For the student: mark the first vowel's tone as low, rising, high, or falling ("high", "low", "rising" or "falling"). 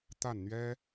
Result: falling